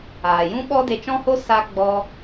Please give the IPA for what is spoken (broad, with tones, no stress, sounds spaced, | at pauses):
aː˨ j ũ˦ ɓ ɔ˦ d e˧ t͡ʃ ɔ̃˦ h o˦ s a˦ ɡ͡b ɔ˦